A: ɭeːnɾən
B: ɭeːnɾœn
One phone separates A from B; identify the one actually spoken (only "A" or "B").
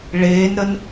A